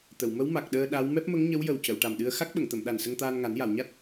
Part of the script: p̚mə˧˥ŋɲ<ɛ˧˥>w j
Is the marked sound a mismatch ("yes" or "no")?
yes